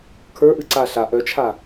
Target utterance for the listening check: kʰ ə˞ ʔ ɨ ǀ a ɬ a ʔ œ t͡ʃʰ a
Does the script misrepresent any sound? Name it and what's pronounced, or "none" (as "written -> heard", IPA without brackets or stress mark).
none